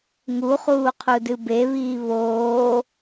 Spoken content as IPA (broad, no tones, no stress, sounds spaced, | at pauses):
ŋ u χ uː qʰ u d ɨ b e β iː β oː